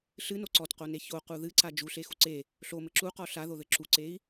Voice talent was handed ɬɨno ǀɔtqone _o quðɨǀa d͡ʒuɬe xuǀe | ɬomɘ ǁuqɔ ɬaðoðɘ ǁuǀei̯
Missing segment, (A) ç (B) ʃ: A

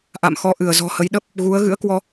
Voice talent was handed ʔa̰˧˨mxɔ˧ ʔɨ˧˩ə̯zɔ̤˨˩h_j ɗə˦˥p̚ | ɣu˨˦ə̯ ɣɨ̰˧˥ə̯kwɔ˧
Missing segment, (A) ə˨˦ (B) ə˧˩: A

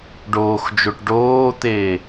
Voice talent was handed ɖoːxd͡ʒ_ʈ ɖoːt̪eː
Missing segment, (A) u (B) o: B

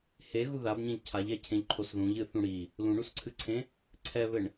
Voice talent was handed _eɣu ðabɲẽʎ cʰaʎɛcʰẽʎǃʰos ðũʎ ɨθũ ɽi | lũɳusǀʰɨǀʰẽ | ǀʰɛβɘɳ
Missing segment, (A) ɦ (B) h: B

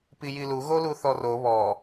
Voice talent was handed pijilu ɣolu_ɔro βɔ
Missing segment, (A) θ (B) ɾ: A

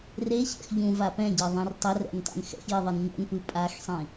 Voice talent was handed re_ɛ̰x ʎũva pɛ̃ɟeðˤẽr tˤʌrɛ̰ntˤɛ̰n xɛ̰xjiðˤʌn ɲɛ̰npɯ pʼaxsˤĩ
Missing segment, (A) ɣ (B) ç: B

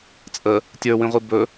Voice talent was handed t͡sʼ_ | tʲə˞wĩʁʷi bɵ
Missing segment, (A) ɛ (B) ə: B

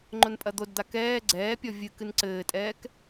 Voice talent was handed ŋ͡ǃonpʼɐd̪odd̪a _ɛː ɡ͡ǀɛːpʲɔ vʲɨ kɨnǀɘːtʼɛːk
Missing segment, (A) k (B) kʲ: A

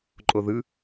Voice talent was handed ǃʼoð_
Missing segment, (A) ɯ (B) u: A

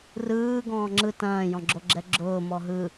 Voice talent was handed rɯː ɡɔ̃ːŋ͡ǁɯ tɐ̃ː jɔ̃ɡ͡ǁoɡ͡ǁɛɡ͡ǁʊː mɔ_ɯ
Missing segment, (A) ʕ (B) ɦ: B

